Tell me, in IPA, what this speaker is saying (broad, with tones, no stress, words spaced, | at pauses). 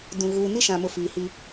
dũ˨ ɣuː˨ni˦ʃã˨mʊ˨ fiː˨hi˦